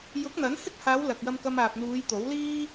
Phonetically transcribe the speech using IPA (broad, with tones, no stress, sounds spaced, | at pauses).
j ʊ˨˥ k̚ n̪ ɐ˨˥ n h ɪ˥ k̚ h aː˨˧ w l ɐ˨ k̚ j ɐ˧ m k ɐ˧ m aː˨ p̚ n̪ uː˨˧ j t̪ o˨˥ w l iː˥